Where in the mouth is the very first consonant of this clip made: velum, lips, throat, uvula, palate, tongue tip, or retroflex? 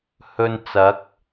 throat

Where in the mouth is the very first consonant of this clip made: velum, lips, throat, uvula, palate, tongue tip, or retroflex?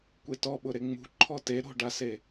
velum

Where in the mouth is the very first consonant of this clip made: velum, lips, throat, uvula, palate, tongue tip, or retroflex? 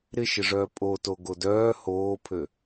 tongue tip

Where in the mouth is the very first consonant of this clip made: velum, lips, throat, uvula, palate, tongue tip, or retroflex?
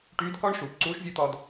retroflex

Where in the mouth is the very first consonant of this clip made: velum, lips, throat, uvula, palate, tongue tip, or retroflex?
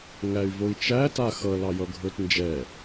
velum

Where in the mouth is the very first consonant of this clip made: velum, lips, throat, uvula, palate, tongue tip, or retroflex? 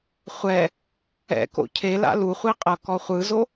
uvula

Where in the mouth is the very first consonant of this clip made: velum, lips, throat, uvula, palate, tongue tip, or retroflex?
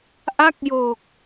throat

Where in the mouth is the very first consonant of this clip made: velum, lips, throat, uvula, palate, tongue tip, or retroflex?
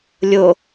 tongue tip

